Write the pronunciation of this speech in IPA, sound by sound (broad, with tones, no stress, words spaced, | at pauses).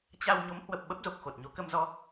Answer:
t͡ɕa˧w ɲo˨˦mhwə˨˩p̚ ɓə˦˥p̚zo˨˩k̚xo˨˩t̚ɲo˨˦ kə˧mzɔ˧